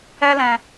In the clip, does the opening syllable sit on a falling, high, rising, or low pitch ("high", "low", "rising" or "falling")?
high